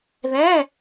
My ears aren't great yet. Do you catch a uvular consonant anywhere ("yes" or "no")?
no